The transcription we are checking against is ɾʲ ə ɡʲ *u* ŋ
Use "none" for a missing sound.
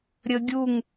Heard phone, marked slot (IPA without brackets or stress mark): u